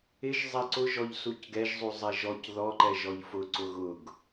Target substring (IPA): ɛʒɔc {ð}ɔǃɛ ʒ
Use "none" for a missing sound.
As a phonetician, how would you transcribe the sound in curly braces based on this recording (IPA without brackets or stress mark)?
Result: ð